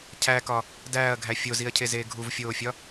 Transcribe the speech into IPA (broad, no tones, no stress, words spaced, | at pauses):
cʰækɒ | dæːɐ̯ɡʱæ fʲoziɐ̯cʰezeː ɡʱuvfʲoːfʲɒ